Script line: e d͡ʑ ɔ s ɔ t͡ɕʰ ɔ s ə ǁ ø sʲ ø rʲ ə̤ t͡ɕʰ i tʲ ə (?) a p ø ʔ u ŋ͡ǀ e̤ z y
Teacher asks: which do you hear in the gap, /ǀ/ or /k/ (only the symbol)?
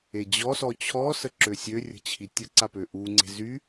ǀ